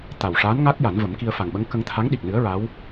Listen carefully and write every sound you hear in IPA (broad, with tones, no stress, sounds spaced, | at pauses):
t̪ a˨˩ w ʂ aː˧˥ n ŋ a˦˥ k̚ j a˨˩˦ n v ə˨˩˦ m k i˧ ə̯ f a˨˩ ŋ ɓ ə˧˥ ŋ k ə˧ ŋ t̪ʰ a˧˥ ŋ ɗ i˨˩ k̚ n ɨ˧˥ ə̯ ɹ a˧˥ w